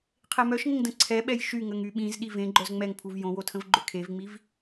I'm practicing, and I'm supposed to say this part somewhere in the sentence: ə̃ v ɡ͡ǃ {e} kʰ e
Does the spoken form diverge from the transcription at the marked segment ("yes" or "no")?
yes